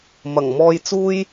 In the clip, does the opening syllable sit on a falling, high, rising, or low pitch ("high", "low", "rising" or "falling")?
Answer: low